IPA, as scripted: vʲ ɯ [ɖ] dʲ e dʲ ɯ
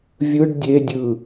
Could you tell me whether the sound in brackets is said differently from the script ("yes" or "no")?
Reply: no